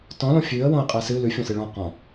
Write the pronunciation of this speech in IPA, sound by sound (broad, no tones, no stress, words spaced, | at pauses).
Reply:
tɔ̃lõ fʲʉə̯ wõə̯qʼɜsɨ lʉfʲõsɨ ɭɔ̃ qɔ̃